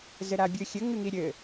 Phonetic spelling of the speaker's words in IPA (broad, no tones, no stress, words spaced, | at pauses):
zɘɾabʲɨxʲɘ ŋɨŋiɾʲɘ